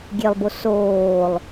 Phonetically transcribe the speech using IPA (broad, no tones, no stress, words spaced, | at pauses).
ɡʲelˠbo soːlˠ